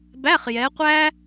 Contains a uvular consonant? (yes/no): yes